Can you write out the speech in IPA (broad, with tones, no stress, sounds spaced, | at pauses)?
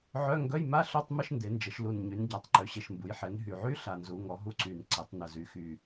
ʕ œ˧˥˧ ŋ ɡ œ˧˥˧ j m a˧˥˧ ɬ œ˧˥˧ tˤ m ə˧˥˧ ʃ n d e˩˧ n d͡ʒ ə˩˧ ʃ l u˨˩ n ɲ y˩˧ n ɟ a˩˧ tˤ ǃ ø˨˩ ɕ e˨˩ ʃ m b u˩˧ j ħ ɛ˩˧ n ɦ y˨˩ ʕ y˧˥˧ ɬ a˨˩ n z u˩˧ ŋ ɔ˩˧ ɦ u˧˥˧ ǀ y˨˩ n ǀ e˩˧ tˤ n ə˨˩ z y˩˧ x y˨˩